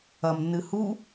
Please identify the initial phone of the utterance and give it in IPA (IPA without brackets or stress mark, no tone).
ɐ